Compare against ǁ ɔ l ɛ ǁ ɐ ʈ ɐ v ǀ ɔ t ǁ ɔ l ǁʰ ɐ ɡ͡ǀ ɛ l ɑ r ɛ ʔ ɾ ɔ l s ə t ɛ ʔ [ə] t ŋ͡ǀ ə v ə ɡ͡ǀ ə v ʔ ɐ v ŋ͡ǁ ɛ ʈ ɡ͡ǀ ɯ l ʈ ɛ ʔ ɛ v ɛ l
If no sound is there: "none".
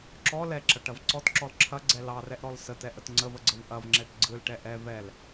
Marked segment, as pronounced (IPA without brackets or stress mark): ə